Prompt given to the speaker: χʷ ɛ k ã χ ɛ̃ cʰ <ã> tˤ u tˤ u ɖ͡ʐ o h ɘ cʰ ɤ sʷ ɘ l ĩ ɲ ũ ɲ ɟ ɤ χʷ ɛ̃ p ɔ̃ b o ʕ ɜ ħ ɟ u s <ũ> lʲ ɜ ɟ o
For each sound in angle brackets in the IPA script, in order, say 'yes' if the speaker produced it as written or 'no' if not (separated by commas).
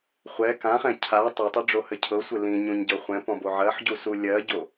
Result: no, no